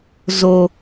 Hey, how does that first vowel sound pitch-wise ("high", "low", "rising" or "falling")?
low